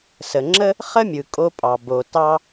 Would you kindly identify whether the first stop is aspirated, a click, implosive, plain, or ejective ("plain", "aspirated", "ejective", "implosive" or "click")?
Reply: click